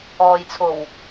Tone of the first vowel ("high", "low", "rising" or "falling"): low